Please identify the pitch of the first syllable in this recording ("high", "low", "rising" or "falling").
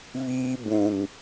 high